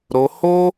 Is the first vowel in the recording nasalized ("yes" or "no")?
no